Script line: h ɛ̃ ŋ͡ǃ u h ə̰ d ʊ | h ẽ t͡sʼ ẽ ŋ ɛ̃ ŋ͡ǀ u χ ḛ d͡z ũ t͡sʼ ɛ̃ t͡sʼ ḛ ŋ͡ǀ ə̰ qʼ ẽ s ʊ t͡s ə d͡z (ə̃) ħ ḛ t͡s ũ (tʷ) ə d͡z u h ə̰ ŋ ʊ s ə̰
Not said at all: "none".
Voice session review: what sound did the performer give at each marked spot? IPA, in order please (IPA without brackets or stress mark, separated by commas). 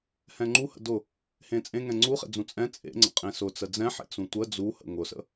ɛ̃, tʷ